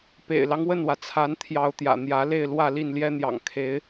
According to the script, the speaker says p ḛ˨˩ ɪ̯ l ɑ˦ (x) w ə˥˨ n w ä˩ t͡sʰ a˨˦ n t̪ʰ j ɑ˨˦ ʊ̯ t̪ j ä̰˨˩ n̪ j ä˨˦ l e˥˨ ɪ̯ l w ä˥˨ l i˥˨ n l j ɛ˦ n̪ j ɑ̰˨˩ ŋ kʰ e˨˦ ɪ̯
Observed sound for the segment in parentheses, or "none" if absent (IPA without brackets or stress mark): ŋ